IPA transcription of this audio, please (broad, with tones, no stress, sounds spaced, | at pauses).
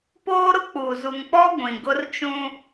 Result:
p oː˦ ɾ ʊ˦ k͡p uː˨ z u˨ ŋ k͡p ɔ˦ ɡʷ ĩ˨ ɡ ʊ˦ r t͡ʃ ũ˦